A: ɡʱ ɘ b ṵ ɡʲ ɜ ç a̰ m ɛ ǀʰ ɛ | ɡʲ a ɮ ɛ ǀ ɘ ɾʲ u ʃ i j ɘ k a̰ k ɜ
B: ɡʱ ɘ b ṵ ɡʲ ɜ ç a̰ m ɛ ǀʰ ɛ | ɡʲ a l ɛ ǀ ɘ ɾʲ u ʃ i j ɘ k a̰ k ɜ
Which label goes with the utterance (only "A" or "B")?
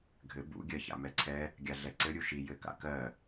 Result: A